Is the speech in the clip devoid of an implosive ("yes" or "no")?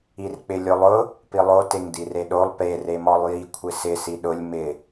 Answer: no